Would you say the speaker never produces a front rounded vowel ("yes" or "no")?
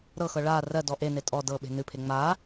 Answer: yes